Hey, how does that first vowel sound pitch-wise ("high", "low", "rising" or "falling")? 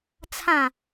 falling